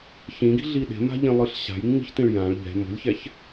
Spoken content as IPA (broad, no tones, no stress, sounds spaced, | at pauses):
ç ĩ ɡ i̤ ɮ i ɗ e̤ m a̤ ʎ ĩ lˠ ɯ ɬ ɕ a̤ j ŋ͡m i̤ ç t ĩ ɭ j ã ɭ ʎ ɛ̤ m o̤ lʲ ç ɛ ç